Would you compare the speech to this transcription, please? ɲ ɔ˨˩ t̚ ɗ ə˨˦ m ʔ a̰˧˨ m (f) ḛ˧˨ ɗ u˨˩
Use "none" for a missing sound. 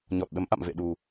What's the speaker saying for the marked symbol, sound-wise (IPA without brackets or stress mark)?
v